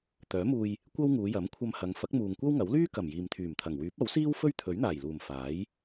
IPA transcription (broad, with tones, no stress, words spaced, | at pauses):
t̪œː˨˥muː˧j | kʷɐ˥wŋuː˨˧ jɐ˨˥mkʷʰɐ˧mhɐ˨˧ŋ fɐ˨˥k̚muː˨ŋkʷɐ˥wŋɐ˨˥w lyː˥kɐ˨˩m jiː˨mt̪ʰyː˨˩mt̪ʰɐ˨˩ŋ wyː˨˥p̚ɐ˨˥wsiː˥w fɵ˥ɥt̪ʰɵ˨˥ɥn̪aː˨˩jluː˨˩m faː˨˥j